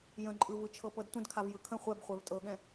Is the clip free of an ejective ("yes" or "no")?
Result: no